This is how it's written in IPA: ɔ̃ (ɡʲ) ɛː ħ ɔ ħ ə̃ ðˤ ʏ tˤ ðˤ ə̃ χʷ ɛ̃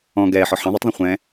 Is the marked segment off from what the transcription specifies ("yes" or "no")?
yes